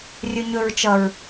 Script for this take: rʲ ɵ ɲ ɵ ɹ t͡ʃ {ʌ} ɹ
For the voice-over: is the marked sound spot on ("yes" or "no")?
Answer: yes